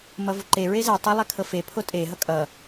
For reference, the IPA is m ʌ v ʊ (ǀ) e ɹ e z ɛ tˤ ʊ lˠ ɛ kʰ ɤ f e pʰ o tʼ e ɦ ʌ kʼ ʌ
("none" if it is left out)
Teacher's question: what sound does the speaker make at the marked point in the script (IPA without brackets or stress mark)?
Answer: ǃ